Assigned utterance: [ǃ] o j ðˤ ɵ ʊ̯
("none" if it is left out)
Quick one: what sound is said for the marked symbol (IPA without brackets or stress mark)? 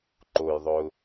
ǃ